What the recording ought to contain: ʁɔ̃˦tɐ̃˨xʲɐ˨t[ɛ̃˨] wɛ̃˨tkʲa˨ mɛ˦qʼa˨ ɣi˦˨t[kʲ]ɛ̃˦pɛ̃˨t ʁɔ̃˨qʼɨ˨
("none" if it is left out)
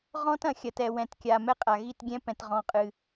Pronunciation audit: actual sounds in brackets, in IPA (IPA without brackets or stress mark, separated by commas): ɛ˨, ɡʲ